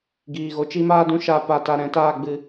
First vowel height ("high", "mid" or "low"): high